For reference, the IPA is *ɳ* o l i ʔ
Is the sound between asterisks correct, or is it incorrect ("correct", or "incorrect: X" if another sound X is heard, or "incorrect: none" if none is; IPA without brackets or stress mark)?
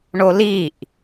correct